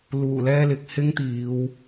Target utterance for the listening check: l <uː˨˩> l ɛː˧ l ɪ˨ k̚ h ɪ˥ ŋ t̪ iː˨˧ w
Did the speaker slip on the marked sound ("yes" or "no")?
no